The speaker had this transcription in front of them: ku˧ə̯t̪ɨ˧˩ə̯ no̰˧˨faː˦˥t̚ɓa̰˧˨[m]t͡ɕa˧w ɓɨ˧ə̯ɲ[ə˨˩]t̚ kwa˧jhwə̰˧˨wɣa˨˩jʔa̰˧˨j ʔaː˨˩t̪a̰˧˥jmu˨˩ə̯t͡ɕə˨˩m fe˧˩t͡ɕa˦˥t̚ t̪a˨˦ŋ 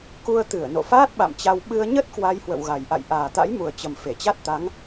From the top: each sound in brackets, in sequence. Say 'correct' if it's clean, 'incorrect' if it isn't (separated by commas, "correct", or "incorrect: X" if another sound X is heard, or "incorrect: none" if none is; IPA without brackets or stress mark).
correct, incorrect: ə˦˥